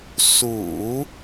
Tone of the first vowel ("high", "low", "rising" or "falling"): low